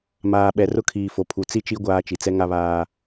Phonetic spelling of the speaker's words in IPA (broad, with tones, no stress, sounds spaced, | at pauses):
m aː˨ ɓ ɛ˨ r ʊ˦ kʰ iː˨ f o˨ pʰ u˨ t͡s i˦ t͡ʃ i˦ ɡʷ aː˦ t͡ʃ i˨ t͡s ɛ˦ ŋ a˦ β aː˦